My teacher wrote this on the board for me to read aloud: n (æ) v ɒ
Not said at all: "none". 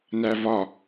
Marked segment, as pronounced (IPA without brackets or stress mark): æ